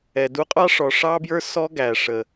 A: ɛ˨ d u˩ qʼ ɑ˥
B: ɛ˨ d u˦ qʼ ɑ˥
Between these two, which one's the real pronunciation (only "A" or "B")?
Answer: B